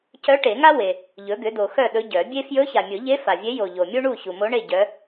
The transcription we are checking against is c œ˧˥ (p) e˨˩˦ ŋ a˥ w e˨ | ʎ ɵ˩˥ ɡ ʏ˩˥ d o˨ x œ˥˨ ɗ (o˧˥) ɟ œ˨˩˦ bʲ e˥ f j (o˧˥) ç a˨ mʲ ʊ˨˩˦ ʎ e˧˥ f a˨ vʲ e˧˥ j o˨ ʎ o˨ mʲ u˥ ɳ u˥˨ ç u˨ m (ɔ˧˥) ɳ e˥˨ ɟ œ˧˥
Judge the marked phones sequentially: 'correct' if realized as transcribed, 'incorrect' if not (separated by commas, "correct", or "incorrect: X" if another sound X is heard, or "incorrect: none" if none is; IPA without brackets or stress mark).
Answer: incorrect: ʈ, incorrect: ɵ˧˥, incorrect: ɵ˧˥, incorrect: o˧˥